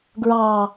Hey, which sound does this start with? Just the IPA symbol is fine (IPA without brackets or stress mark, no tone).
ɡ